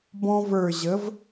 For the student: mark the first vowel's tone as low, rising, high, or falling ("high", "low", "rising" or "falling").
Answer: high